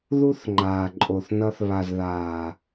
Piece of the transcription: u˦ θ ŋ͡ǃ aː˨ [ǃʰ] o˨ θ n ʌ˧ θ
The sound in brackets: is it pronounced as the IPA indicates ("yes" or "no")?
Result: no